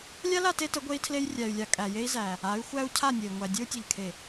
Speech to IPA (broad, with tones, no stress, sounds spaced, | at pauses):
lʲ a˦ l a˦˨ t e˦ t ə˨˦ ɡʷ e˦ i̯ tʰ l e˦ j rʲ æ˨ y̯ lʲ a˨ kʼ æ˨ j e˦ i̯ z æ˨ | a˨˦ y̯ xʷ æ˦ u̯ cʰ a˦˨ nʲ e˨ i̯ ŋʷ æ˨ dʲ ɘ˦ u̯ tʲ ɘ˨ ʎ kʰ e˨